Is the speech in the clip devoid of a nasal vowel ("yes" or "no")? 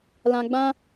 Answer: no